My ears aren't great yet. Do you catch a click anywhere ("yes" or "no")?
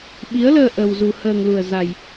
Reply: no